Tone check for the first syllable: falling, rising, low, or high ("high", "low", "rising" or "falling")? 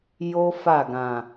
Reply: high